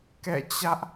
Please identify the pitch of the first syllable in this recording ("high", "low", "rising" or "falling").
falling